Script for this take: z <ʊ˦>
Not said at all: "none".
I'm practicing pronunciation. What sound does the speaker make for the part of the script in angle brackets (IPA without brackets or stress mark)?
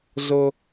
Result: ʊ˦